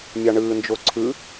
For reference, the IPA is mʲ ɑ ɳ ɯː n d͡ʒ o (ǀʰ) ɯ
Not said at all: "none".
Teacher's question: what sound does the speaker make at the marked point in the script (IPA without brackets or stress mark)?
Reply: ǀʰ